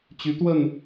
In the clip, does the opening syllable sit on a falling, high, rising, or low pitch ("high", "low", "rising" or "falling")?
rising